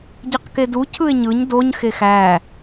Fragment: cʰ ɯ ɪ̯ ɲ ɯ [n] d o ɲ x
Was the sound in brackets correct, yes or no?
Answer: no